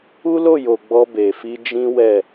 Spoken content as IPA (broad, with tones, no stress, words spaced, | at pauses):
u˦lo˦˨jo˨ ɡ͡bɔ˧be˨fi˧ d͡ʒĩ˦wɛ˦˨